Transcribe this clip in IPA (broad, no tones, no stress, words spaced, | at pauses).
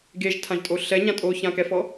ɡeʒtʰãʒtʼo ɬɛɲã tʼoçãkɛfɔ